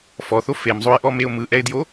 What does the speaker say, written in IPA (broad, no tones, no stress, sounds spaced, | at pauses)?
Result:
f ɔ θ o f e m zˤ o ɪ̯ ʔ ɔ m e ʊ̯ m ɯ ʔ ɛ ɪ̯ d j o